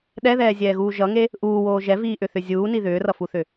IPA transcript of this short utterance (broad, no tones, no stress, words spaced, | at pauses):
ɗɛðɛːzʲɛːɣuː ʒʌŋe | ʔuːwoː ʒɛviːʔʏθʏ zʲuːni ðʏːrʌfuθʏ